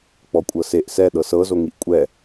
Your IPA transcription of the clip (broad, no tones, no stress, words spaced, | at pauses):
k͡pɔkʷʼɤseʔ sɛ ɗɤsɤ zoŋiʔkʷʼɛ